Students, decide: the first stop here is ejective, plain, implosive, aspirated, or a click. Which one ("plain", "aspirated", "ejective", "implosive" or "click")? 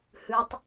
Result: plain